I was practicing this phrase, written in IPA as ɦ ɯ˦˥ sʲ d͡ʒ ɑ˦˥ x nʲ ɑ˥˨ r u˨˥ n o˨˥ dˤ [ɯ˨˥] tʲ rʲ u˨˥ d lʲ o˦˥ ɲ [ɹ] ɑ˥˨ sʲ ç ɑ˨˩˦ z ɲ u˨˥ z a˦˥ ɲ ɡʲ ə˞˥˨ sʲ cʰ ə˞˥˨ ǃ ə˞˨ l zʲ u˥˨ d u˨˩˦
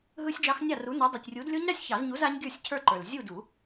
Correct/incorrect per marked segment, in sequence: incorrect: ɯ˨, incorrect: ɾ

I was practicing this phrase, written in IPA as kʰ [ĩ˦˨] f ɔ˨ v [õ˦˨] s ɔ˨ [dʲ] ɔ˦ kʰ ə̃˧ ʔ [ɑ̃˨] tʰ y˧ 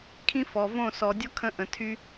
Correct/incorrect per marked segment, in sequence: incorrect: ĩ˦, correct, correct, incorrect: ə̃˨

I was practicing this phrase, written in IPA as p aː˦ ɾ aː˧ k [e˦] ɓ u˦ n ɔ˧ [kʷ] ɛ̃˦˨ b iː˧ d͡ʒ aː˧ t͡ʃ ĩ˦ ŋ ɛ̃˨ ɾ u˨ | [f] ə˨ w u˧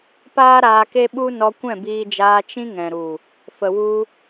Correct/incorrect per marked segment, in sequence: correct, correct, correct

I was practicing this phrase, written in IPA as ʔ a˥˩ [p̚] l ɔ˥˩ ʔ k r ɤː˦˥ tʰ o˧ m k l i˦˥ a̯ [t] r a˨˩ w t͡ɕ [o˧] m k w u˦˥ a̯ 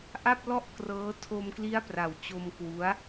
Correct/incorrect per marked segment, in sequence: correct, incorrect: p, correct

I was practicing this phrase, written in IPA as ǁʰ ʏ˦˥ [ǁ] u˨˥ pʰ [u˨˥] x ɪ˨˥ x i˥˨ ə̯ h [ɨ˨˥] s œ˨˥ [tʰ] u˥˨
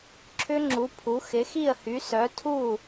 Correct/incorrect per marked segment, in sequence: incorrect: ŋ͡ǁ, correct, incorrect: y˨˥, correct

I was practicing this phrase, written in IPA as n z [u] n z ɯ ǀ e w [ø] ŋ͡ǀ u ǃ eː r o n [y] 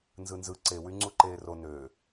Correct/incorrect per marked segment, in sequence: incorrect: ɯ, incorrect: y, incorrect: ø

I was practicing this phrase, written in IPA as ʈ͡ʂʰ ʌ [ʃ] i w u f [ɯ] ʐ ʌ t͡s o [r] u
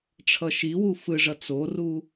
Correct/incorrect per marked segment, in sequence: correct, correct, correct

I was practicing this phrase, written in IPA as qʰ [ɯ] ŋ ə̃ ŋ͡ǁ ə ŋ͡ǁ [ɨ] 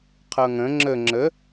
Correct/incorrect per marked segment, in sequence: incorrect: ɤ, incorrect: ə

